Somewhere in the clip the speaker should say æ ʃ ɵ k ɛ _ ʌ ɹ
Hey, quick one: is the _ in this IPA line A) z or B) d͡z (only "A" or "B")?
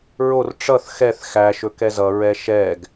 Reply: A